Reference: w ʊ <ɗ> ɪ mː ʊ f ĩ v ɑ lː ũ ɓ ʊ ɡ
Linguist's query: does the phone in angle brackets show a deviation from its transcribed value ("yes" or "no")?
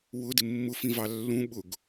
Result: yes